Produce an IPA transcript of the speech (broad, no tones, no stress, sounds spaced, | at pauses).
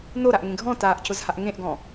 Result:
n o ɾ a ʔ ŋ ẽ ɡʱ ɔ̃ t aː ʔ c ʊ z h a ʔ ŋ ẽ ʔ ɡ ɔ̃